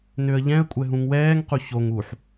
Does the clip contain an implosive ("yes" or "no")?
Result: no